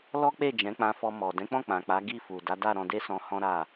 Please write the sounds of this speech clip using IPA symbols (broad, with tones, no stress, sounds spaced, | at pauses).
l ɔ˦ k͡p e˦˨ d͡ʒ ɛ̃˨˦ k͡p ã˧ f ɔ˧ m ɔ˨ d ɛ̃˨˦ k͡p ɔ̃˦˨ k͡p ã˨ k͡p a˨˦ ɡ i˦˨ f u˨ d a˨˦ d a˦˨ ɾ ɔ̃˧ d e˦ s ɔ̃˧ h ɔ̃˦ ɾ a˦˨